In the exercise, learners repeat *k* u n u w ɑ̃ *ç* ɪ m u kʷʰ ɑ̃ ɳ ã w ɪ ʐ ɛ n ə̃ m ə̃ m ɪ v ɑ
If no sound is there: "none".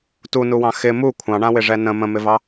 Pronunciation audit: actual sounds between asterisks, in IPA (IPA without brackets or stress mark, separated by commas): t, x